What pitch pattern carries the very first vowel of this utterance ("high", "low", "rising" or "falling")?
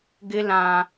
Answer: high